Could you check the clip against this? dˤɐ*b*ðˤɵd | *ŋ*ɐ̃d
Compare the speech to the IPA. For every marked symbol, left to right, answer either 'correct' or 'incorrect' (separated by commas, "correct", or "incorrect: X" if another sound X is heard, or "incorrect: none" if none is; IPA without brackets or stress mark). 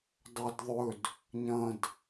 incorrect: d, incorrect: ɲ